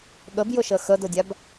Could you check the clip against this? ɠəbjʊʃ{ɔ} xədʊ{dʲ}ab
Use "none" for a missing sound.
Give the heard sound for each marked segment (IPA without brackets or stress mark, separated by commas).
ə, dʲ